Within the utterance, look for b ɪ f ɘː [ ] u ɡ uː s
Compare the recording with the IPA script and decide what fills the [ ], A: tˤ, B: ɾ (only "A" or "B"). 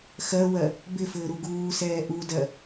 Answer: B